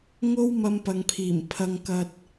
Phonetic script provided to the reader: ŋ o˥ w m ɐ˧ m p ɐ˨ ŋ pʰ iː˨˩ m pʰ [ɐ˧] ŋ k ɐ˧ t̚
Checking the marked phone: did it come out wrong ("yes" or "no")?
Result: no